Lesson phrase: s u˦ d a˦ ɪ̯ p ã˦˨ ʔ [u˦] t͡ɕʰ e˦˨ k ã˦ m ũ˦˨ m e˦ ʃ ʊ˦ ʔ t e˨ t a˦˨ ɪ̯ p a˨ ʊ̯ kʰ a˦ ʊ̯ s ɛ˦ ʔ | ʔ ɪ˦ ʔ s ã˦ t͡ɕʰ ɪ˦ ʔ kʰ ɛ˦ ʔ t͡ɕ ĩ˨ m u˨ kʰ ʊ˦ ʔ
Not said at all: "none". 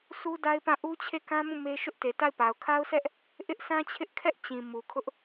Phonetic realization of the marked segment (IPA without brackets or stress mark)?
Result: u˦